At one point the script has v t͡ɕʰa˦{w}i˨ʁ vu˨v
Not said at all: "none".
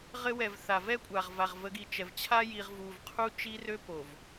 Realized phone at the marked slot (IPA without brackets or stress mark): j